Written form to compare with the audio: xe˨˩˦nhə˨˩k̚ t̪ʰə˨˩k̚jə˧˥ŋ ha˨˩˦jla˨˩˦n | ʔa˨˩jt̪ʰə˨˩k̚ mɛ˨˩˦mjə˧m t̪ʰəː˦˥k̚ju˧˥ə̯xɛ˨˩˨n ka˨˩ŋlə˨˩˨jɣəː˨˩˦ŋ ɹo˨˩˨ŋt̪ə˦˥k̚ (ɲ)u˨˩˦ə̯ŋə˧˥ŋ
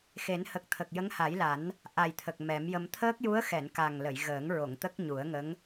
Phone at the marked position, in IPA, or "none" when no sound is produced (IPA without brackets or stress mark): ɲ